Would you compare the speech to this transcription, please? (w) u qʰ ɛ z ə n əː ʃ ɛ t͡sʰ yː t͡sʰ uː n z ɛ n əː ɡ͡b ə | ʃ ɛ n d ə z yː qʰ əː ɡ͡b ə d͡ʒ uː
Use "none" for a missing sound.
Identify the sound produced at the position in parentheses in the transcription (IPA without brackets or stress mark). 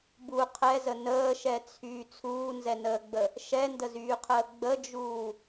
b